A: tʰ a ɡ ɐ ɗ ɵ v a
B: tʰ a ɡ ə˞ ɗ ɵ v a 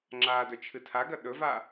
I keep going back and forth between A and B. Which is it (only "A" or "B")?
A